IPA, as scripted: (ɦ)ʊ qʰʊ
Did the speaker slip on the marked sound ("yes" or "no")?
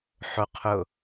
yes